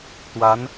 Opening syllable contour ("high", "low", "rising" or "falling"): rising